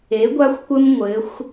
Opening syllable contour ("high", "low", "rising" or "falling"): rising